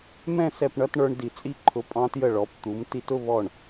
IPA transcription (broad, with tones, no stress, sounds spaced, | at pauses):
m ɛ̃˥˧ s ɛ˧˩ p ɳ ʌ˧ t ɳ ə˞˧ ɳ d i˧˩ t͡sʼ i˥˧ ǃʰ ʊ˧ pʼ ɑ̃˧ t j ə˧˩ ɭ ɔ˩˧ p t̪ u˩˧ m t i˧ t ʊ˥˧ β ɔ˧˩ ɳ